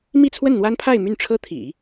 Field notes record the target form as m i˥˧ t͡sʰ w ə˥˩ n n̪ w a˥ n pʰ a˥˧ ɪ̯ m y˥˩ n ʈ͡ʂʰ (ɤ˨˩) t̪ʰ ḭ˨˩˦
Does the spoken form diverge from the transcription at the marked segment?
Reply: yes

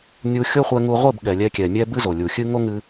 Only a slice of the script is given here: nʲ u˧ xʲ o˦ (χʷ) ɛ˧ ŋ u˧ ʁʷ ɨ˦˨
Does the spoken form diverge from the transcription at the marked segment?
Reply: no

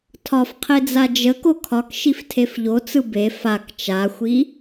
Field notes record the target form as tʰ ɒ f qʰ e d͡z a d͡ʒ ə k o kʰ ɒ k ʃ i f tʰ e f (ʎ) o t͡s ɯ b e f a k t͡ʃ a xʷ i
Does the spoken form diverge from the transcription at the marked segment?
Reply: no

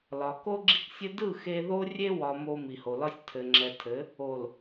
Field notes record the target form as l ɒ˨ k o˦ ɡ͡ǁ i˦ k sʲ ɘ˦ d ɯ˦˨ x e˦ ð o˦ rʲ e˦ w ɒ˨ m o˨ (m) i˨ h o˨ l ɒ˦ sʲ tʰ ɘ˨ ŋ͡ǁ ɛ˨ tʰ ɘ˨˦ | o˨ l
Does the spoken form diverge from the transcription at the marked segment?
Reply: no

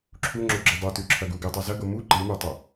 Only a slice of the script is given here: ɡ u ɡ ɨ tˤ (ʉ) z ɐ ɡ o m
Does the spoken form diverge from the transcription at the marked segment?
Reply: no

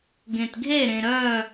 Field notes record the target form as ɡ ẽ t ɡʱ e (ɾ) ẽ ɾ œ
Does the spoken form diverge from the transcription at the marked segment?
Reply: no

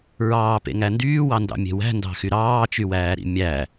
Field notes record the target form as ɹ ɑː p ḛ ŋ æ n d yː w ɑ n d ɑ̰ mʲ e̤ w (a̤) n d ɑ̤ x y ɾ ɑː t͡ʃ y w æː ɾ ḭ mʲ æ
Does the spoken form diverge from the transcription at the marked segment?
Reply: yes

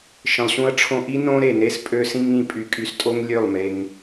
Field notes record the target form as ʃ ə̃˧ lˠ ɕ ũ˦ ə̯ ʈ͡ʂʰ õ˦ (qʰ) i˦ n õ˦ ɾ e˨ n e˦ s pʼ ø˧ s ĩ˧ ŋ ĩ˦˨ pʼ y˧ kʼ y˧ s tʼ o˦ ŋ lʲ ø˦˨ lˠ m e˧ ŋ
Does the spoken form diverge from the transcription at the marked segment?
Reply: yes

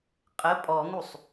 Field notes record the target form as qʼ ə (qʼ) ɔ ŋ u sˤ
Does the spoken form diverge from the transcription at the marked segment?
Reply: yes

